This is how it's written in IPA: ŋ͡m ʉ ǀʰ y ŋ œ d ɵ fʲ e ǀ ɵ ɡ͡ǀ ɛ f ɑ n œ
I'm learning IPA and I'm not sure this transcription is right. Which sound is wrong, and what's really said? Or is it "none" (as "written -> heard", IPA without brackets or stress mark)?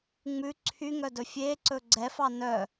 none